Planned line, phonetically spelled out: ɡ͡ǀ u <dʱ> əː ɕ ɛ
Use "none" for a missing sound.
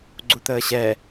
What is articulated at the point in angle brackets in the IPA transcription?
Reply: t̪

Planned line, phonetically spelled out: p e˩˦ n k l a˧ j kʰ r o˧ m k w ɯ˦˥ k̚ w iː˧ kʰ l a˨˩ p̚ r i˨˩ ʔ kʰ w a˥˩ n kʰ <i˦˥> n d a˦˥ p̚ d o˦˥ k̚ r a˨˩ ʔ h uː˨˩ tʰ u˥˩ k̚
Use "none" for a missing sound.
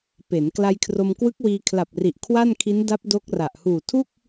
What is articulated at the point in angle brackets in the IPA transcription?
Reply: i˦˥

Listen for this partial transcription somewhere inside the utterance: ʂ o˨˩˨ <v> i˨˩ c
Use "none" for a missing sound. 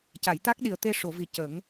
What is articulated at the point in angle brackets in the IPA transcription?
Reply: v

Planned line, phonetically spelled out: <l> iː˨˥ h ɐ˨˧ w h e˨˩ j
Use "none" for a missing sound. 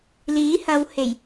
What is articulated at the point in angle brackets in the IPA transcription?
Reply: l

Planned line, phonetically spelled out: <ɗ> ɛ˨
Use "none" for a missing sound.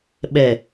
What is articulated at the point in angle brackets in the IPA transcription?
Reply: ɓ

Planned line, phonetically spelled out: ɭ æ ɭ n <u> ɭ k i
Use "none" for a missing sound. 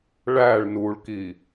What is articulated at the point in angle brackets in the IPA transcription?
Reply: u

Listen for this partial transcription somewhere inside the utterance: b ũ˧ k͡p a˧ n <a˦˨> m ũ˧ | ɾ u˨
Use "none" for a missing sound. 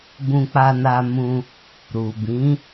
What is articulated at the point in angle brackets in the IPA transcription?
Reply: a˧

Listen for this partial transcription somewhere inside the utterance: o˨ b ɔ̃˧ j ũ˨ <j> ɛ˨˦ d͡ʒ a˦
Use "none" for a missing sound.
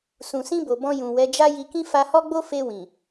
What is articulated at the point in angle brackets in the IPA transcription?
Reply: w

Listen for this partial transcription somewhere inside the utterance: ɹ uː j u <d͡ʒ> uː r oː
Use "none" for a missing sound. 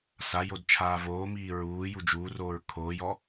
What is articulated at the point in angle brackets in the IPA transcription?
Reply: d͡ʒ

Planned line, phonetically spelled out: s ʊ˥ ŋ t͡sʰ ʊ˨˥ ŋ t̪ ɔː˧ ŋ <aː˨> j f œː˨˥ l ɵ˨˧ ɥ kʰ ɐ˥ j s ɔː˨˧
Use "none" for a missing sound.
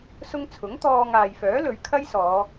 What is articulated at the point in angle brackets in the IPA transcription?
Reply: aː˨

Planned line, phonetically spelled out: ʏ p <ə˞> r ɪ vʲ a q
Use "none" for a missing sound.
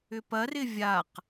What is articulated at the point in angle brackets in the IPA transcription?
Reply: ɐ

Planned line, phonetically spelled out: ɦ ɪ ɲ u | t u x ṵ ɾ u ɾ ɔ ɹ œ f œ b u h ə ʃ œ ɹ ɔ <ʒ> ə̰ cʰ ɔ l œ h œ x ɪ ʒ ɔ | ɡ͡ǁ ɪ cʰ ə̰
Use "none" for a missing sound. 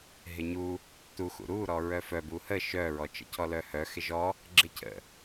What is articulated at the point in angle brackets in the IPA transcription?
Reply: t͡ʃ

